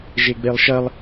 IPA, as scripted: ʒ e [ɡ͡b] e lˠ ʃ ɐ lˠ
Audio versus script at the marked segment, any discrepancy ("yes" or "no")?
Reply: no